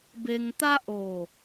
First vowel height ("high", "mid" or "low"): mid